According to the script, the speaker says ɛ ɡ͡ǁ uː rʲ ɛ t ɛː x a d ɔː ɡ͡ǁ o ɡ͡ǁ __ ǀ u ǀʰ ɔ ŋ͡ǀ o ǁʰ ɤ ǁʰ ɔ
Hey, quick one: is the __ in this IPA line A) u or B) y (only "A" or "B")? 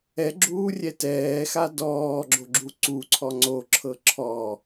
A